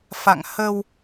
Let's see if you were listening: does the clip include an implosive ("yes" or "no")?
no